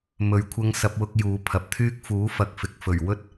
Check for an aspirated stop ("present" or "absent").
present